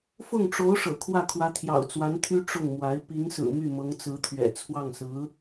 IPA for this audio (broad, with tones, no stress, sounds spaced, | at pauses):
f ʊ˥˩ ŋ ʈ͡ʂ o˧˥ ʊ̯ ʂ ɤ̰˨˩ kʰ w ä˥˩ kʰ w ä˧˥ t̪ʰ j ɑ̰˨˩ ʊ̯ t͡s w a˧˥ n t̪ʰ y˥ ʈ͡ʂ ʊ˥˩ ŋ m w a˧˥ ɪ̯ p i˧˥ ŋ s ɹ̩˨˩ m y˥˩ m ɤ˧˥ ŋ t͡s ɹ̩˧˥ t̪ʰ ɥ ɛ̰˨˩ t͡sʰ w ɑ˥˩ ŋ s ɹ̩˧˥